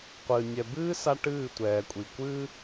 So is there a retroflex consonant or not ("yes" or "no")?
yes